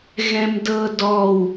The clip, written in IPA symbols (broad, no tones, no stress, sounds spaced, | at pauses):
ɣ ɛ̃ m d ɤ d ɔ w